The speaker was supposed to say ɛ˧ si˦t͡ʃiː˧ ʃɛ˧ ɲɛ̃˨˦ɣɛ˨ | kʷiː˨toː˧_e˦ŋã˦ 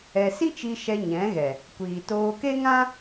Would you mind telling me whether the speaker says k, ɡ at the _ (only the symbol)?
k